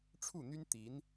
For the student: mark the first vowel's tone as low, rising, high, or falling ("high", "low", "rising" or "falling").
falling